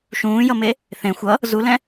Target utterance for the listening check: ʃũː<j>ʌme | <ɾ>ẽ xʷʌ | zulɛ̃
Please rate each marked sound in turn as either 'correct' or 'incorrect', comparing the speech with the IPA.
correct, incorrect

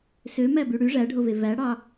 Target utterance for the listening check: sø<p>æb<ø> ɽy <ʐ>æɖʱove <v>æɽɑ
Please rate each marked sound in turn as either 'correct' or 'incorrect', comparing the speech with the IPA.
incorrect, incorrect, correct, correct

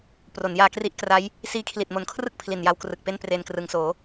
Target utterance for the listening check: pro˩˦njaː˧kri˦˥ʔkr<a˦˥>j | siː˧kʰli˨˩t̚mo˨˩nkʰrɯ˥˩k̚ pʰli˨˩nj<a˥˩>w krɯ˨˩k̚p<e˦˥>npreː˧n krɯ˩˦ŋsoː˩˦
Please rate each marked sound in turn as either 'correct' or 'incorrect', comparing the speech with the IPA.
correct, incorrect, incorrect

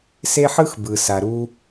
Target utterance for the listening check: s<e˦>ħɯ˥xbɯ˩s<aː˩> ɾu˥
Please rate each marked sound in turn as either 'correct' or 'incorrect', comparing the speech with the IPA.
correct, incorrect

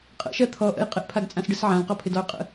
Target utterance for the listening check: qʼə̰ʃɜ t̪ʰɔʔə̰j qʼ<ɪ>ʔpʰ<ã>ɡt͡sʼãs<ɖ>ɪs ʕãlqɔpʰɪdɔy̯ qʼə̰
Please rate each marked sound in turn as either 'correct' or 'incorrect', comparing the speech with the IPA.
correct, incorrect, correct

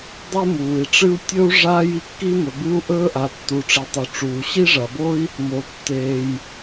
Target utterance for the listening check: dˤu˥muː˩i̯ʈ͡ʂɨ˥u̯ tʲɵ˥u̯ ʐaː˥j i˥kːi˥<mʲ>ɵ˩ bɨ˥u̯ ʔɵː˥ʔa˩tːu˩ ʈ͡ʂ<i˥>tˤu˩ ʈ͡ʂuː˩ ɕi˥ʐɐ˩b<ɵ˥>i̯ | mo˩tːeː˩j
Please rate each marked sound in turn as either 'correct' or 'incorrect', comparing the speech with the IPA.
incorrect, incorrect, incorrect

